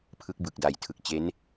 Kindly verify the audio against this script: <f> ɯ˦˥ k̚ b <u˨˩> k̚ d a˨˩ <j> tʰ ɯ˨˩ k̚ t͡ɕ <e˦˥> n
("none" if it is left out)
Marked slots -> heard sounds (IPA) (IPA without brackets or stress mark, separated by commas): pʰ, ɯ˨˩, j, e˦˥